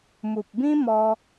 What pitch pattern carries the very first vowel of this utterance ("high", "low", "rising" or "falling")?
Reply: low